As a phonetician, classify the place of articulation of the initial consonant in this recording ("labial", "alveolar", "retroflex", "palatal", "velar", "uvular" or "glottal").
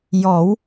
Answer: palatal